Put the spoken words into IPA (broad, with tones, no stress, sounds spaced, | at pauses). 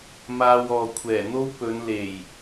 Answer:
m aː˧ w ɔː˨ kʷʰ ɛː˨˩ n̪ o˥ w p ɵ˨˧ n l e˨˩ j